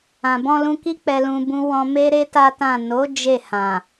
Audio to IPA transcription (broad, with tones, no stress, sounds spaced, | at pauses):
ã˨ b ɔ̃˧ l ũ˧ k i˦ k͡p ɛ˧ l ũ˧ b ũ˦ w ɔ̃˧ m e˦ ɾ e˦ t a˦ t ã˦˨ n o˨˦ d͡ʒ e˦˨ h ã˨